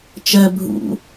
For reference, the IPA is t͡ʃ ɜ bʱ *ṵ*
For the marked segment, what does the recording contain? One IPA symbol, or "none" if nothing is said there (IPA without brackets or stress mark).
ṵ